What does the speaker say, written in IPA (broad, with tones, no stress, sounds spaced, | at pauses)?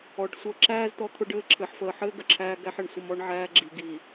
ɔ˨˦ ɖ sʷ əː˦ ǁ æː˦ z t̪ ɔ˦ t̪ʰ ʊ˦ ɖ ɘː˦ ǁʰ ɘ˦ ħ f əː˨ ħ ɘː˦ ɡ ə˨ ǁʰ æː˦ ɡ æ˦ ħ ɘ˨ ɳ sʷ ə˦ m ɔ˦ ɳ ʕ æː˦ ɡ͡ǁ i˨ ɡ iː˨